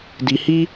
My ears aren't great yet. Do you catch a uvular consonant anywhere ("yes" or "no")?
no